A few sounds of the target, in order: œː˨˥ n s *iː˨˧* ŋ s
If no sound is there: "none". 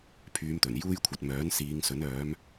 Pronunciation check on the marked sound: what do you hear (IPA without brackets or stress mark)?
iː˨˧